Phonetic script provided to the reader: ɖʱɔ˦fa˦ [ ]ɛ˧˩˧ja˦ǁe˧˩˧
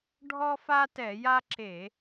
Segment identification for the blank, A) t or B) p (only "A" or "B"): A